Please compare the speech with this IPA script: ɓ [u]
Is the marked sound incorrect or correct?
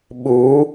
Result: correct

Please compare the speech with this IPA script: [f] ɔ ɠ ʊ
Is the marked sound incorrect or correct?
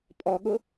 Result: incorrect: pʼ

